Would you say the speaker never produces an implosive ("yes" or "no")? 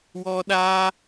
no